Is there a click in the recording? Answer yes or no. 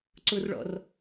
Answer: yes